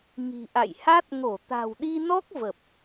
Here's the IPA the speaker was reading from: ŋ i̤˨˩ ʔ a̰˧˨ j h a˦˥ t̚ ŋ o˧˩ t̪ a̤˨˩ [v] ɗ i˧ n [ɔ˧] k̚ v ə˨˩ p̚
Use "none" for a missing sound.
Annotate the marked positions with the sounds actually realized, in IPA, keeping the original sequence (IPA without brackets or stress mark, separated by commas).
w, ɔ˦˥